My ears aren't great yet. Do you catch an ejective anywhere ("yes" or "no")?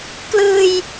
no